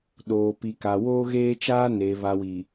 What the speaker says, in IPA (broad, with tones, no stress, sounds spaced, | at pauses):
ɗ oː˨ p i˨ k a˨ w oː˦ ɣ eː˦ t͡ʃ aː˦ n e˨ β a˨ w i˨